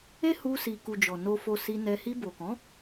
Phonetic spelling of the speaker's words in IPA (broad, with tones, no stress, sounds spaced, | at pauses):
e˦ h u˧ s i˨ k u˨ d͡ʒ ɔ˨ n o˧ f o˧ s i˧ n ɛ˧ h i˧ b o˨ k ɔ̃˨˦